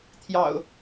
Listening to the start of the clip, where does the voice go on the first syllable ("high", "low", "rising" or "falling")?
low